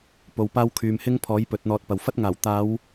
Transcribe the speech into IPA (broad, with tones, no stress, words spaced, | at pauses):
po˨wpaː˥w kʰyː˧m hɪ˥ŋpʰɔː˨˥j pɵ˨˥t̚n̪ɔː˧t̚pɐ˨w fɐ˥t̚ŋaː˨˩w t̪aː˨˧w